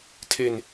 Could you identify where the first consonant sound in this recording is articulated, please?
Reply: alveolar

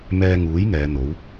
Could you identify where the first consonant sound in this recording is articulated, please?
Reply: labial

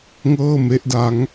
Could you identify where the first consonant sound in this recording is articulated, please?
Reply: velar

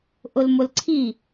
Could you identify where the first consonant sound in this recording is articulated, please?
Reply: glottal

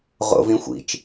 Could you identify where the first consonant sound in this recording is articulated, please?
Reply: uvular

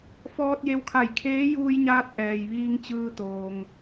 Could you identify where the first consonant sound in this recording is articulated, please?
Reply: labial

